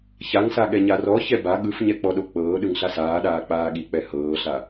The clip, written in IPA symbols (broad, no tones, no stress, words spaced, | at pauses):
çaŋsa ɠɛɲarɔçɛ ba ɠɯfɲɛ k͡pɔɗok͡pɤːɗɯŋ ɬasaːɗaː k͡paːɠik͡pɛ hɤːɬa